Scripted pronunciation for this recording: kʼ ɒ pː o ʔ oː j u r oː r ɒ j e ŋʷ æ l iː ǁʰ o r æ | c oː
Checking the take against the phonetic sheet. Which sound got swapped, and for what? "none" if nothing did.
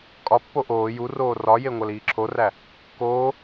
c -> k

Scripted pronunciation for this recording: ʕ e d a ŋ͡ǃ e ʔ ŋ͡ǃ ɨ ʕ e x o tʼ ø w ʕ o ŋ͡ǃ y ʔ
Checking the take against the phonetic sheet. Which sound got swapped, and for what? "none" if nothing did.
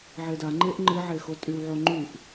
ø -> y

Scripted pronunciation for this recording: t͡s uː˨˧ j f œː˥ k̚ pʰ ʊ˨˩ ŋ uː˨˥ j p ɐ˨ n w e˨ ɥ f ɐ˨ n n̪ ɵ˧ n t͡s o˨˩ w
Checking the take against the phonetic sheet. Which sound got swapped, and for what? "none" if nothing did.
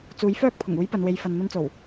ɥ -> j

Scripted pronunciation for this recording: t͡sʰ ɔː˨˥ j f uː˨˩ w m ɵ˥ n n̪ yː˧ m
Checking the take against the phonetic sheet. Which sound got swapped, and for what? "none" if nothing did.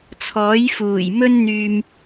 w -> j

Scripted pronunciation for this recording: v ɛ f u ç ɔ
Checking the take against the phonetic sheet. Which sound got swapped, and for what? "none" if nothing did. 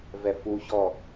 none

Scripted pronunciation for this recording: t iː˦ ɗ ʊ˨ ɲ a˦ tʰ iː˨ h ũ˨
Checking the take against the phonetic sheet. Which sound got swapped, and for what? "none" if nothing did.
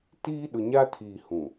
none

